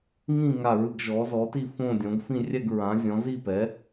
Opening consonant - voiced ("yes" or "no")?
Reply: yes